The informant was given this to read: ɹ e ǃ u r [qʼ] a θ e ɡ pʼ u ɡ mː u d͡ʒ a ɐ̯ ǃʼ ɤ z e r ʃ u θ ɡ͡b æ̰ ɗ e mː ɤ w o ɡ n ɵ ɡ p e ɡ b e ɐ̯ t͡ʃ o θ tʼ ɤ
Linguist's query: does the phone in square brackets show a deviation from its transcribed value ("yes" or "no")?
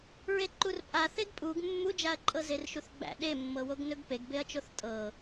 yes